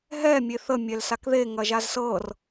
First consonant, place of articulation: glottal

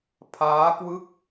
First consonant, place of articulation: labial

